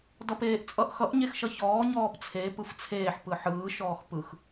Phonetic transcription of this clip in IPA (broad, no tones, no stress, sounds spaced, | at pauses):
d ʌ p eː ʔ t͡sʼ ʌ ʔ x ʌ ʔ ɲ e x ʃ ʌ ç ɔː ɲ ɔː p t͡sʰ e p ɯ f t͡sʰ eː ħ p ɯ ħ ɯː ʃ ɔː x p ɯ x